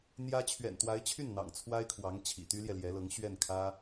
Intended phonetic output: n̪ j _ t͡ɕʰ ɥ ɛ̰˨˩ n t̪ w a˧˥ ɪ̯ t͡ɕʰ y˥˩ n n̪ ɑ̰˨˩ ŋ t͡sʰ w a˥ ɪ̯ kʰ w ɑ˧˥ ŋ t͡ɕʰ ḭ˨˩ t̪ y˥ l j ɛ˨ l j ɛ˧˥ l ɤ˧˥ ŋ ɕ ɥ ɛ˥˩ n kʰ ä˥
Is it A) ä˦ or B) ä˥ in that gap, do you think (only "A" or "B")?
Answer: B